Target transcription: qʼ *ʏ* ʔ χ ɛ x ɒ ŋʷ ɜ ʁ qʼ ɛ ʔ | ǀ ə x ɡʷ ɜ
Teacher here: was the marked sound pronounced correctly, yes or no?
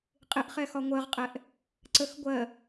no